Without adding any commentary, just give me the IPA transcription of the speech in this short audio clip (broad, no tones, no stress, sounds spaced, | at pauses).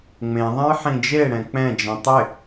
ŋ͡m ẽ ðˤ ẽ j ħ ĩ d͡ʒ e ɽ ɛ̃ k͡p ɛ̃ d͡ʒ ĩ tˤ ɪ